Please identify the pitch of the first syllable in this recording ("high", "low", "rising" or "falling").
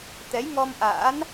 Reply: rising